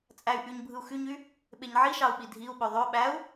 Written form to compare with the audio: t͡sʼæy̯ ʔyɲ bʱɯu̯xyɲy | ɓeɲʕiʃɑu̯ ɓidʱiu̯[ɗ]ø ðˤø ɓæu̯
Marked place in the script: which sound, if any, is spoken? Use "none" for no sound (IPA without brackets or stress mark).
ɓ